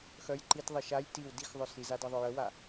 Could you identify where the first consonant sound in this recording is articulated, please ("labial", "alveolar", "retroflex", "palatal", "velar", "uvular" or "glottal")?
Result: velar